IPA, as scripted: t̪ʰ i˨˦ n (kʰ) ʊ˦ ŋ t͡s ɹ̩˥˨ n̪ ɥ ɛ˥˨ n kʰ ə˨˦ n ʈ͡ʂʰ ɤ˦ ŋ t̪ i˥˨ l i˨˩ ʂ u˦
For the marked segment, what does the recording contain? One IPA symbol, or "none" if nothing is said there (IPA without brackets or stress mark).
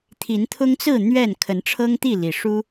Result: t̪ʰ